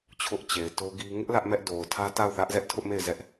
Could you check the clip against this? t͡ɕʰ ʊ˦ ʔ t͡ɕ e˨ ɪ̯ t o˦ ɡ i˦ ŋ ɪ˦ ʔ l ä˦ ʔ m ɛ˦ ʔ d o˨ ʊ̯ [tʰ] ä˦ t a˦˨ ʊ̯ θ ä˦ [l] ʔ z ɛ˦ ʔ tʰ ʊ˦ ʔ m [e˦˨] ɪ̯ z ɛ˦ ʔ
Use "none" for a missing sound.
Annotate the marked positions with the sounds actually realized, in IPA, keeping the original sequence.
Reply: tʰ, none, e˦˨

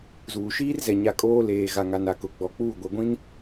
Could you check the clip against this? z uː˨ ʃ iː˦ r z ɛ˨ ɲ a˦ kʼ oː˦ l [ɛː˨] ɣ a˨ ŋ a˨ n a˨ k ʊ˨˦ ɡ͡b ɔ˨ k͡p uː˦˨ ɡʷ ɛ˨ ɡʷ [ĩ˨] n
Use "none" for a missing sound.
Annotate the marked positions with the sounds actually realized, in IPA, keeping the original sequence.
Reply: eː˨, ĩ˦

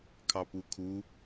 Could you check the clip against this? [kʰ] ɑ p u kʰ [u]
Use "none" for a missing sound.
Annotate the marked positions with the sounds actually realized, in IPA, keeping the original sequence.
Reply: kʰ, u

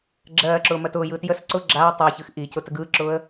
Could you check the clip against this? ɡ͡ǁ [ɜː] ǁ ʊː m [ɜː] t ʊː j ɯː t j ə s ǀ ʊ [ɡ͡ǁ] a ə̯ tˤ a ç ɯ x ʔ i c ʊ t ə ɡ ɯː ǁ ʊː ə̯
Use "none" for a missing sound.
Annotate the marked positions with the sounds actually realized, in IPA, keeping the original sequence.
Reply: ɜː, ɜ, ɡ͡ǁ

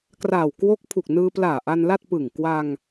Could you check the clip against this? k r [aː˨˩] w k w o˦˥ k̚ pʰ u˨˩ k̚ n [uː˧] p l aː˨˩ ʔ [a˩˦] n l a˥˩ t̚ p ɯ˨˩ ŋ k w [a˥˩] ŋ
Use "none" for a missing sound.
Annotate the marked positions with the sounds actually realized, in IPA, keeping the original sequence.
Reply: aː˨˩, ɯː˧, a˧, a˧

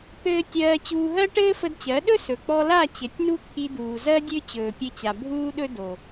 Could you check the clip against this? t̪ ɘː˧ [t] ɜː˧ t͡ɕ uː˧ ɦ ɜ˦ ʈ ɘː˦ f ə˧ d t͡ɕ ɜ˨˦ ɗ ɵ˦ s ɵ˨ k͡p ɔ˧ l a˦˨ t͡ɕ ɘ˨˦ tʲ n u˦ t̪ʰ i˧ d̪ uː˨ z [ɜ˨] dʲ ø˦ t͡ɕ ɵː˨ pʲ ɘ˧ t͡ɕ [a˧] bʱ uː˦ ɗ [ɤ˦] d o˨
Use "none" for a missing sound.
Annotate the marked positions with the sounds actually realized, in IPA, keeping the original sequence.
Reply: tʲ, ɜ˦, a˨, ɵ˦

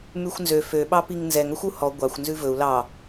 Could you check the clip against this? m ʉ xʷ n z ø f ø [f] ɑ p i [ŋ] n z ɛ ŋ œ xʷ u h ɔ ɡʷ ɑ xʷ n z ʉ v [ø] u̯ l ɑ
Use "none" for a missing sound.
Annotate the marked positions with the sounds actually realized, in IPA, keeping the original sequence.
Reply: ɓ, ŋ, ɵ

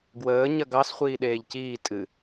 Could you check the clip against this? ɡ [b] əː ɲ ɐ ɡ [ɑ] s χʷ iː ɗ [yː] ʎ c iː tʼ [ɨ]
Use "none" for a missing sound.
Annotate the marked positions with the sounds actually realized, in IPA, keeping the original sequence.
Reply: w, ɑ, eː, ɨ

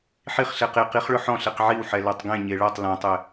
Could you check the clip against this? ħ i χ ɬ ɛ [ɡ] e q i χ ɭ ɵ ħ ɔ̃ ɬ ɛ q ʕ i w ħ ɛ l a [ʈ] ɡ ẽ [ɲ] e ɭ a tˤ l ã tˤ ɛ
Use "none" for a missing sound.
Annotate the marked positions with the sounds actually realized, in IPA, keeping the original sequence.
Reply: q, tˤ, ɲ

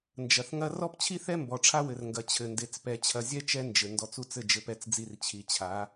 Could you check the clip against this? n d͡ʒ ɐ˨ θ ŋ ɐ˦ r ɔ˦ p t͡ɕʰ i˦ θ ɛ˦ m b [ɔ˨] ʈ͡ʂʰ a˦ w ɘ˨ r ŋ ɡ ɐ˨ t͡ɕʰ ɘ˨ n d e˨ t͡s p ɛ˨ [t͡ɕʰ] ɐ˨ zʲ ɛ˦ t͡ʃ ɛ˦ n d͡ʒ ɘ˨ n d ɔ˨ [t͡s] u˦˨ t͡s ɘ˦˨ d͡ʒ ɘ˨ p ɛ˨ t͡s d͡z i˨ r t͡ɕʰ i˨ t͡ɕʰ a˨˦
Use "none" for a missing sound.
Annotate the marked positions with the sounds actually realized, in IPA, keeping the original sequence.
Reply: ɔ˨, t͡ɕʰ, t͡s

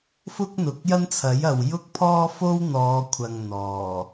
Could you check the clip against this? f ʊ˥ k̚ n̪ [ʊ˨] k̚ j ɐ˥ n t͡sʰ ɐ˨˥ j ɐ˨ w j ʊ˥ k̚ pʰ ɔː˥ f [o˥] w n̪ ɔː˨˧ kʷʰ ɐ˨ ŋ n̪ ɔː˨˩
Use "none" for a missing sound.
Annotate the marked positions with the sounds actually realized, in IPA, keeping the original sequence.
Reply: ʊ˨, o˥

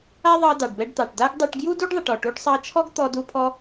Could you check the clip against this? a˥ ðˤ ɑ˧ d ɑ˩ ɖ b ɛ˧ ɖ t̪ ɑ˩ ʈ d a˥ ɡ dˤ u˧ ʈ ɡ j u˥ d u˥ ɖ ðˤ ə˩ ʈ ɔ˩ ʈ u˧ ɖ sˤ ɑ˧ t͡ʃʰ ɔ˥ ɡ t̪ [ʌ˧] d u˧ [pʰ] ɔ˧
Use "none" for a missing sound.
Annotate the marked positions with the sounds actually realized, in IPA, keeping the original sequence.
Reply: ɔ˧, pʰ

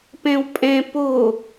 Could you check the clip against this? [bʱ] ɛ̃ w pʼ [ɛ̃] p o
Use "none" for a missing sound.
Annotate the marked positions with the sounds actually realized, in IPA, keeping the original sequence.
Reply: p, ɛ̃

